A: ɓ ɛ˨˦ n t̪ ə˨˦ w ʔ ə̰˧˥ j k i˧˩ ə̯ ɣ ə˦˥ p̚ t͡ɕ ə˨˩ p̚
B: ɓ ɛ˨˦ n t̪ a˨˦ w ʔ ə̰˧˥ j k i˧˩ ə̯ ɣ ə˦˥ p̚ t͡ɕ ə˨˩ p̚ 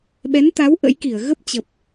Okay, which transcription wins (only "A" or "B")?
B